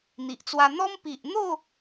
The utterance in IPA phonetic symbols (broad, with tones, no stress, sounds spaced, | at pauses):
n̪ i˨ ʔ t͡s w a˧ n̪ ɔ˦ m p i˨ ʔ n̪ o˥˧